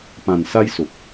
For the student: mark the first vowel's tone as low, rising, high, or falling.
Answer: low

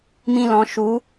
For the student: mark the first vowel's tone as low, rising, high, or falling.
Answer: high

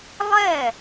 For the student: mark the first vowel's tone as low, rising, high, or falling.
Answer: falling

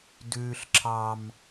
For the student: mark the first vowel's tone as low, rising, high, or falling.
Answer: high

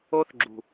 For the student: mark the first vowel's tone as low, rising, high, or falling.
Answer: high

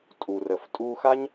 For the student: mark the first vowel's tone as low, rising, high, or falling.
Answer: low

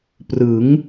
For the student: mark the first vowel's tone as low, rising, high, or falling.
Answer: rising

